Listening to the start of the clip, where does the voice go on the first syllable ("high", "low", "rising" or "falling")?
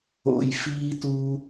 low